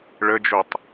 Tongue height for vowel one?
mid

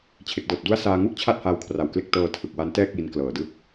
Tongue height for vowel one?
mid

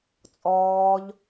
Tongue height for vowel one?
mid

